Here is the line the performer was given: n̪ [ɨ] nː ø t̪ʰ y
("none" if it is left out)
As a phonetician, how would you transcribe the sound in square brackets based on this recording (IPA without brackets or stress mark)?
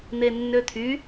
e